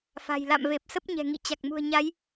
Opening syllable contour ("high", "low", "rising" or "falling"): low